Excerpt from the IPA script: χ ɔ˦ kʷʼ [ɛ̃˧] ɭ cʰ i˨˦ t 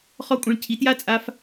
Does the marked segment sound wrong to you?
no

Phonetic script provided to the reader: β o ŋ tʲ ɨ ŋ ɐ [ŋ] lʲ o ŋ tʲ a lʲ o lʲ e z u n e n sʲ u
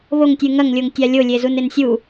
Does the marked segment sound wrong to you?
no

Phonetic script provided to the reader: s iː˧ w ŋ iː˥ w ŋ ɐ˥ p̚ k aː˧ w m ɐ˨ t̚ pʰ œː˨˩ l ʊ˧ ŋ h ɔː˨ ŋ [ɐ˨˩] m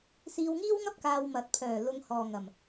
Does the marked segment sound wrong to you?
no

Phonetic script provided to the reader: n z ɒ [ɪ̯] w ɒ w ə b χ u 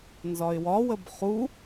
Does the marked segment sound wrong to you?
no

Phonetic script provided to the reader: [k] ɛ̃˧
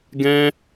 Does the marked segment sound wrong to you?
yes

